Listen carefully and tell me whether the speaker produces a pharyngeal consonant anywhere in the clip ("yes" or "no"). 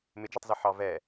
yes